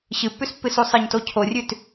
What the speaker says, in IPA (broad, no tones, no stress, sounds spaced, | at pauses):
ɕ ɨ pː ʉ s pː ɨ s u sˤ ɨ ɲ t o cʰ o rʲ ʉ t